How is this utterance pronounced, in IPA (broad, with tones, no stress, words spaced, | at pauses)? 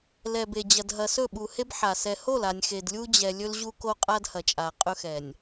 lɛ˨be˨ d͡ʑɐ˨dɦɐ˨ sɵ˦˨ɓu˨he˦b ħa˨ sɛ˨ho˦˨la˨nʲ xe˨dlʲu˦d͡ʑɛ˨ lʲɵ˦lʑu˦ko˦ qʼa˦dhɐ˨t͡ʃʼa˨ qʼɵ˦xɛ˨nʲ